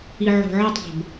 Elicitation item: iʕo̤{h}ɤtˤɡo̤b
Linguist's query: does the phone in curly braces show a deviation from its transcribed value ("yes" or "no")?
yes